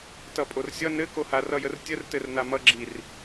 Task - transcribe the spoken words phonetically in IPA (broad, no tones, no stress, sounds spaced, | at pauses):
t ʌ pʼ o r sʲ ʌ n ɘ k o h a r ʌ j ə r tʲ ə r t ɘ r n a m ʌ ɡ͡ǁ i r